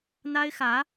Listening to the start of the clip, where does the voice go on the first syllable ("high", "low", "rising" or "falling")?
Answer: high